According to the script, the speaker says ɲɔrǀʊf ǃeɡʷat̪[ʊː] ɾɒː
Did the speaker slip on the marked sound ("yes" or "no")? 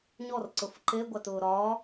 no